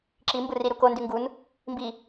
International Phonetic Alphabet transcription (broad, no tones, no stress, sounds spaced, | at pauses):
ǁ i m b ɯ r i ɾ u k o n d y ŋ ɡ u n | m b i